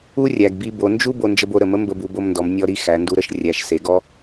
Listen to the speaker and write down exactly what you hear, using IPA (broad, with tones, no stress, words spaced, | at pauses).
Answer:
u˥rʲæ˩ɡbi˧ bo˩˧nd͡ʒu˥ bo˧nd͡ʒə˧b o˩˧ɾə˩mə˧˥ mbə˧bu˩˧bo˧mndɔ˩˧m nʲɔ˧ɾi˧ xæ˩˧ndu˧ɾə˧ʃ rʲæ˩˧ʃ se˩˧ɡɔ˧